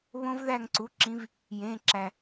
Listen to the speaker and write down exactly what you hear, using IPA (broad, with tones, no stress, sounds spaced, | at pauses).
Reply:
β õ˦˥ v ð æ˦˨ ŋ ǀ u˩˧˩ ǁ ĩ˨˦ v | j ẽ˩˧˩ ǁ æ˩